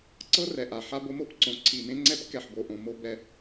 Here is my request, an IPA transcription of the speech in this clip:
ǀɤ˦rɛ˨ʔa˨ ħa˦bo˦mo˦pǀõ˨˦ ǀʰi˨mẽ˦ŋ͡ǀɛ˦p kɛ˨ħbo˨ʔõ˨mo˦ bɛ˦

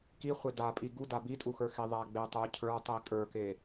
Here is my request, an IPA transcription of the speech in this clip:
ki χʷeda pʼiɡu dabitʼuxə˞ xiðˤa ɡ͡betˤu cʰə˞tˤi kʼə˞ke

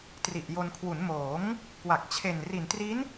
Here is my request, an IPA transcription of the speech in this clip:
tri˨˩ʔjo˧n kʰwu˩˦nmoː˩˦ŋ | kwa˨˩k̚t͡ɕʰe˨˩nri˨˩n tri˦˥n

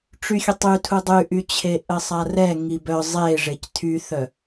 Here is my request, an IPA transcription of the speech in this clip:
ʈ͡ʂyxʲətˤytʰu dˤyʔyt͡ɕʰe ʔəsˤarɛ ŋibœ zˤe ʐectʰyθœ

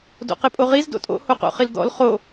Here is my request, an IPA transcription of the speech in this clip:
do̰qepʼoʁiz do̰tʼo̰ hoqo̰χild̪ɔ̰l χo

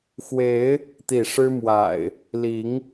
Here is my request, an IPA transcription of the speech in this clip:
xwe˨˦ɪ̯ | t̪i˥˨ ʂɻ̩˦mwa̰˨˩ɪ̯ | li˨˦ŋ

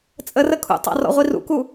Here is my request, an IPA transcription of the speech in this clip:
t͡sʼərə kʰṵtˤɑ̰ rɔ̰ʁʷirṵku

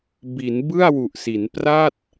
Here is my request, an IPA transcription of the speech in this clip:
bi˩˦n bɯ˥˩a̯wu˨˩ʔsi˩˦n pra˥˩t̚

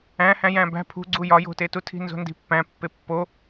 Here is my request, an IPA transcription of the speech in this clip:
æ̃hæ̃ jæ̃bæ̤ pʰṳɡ͡ǀu jɒjo̤tetu tʰi̤nzo̤ndi̤pːæ̃ pːepːo

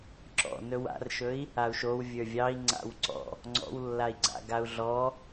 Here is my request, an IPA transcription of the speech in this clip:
ǁɔ̰ nɵwa̰rʃɵi̯ | au̯ʃow vʲə˞vʲɑi̯ ŋ͡ǀa̰wǀɔ̰ | ŋ͡ǀɔ̰wlːai̯ ɡ͡ǀa̰ɡau̯ɮɔ

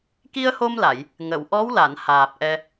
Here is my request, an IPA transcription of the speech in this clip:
ki˧ə̯ho˧mla˨˩˨j | ŋə˨˩˨w ʔɔ˧˥wla˨˩˨nhaː˨˩p̚ ʔɛ˧

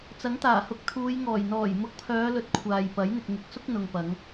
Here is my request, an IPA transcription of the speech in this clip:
t͡sɐ˨˥ŋt̪aː˨˩hʊ˨k̚t̪ʰuː˨˧j ŋɔː˨˩j n̪ɔː˨˩jmʊ˨˥k̚pʰœː˨˧lɵ˨t̚ kʷʰaː˨jpɐ˨˥j n̪ɪ˨k̚ŋɪ˨˥k̚sʊ˥k̚ n̪ʊ˨ŋpɐ˨˧ŋ

